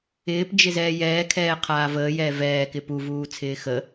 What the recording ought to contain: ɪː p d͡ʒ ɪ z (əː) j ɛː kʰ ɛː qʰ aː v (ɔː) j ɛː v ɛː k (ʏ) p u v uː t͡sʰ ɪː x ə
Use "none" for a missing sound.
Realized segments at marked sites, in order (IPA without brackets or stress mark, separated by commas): ɛː, əː, ɪ